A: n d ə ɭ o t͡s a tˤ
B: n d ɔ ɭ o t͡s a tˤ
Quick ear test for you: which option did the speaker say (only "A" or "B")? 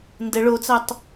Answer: A